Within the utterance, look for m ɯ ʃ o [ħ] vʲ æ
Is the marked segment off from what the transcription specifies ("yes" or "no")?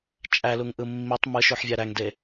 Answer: no